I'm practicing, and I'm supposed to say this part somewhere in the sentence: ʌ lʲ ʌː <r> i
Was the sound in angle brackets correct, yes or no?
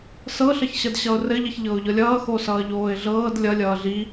no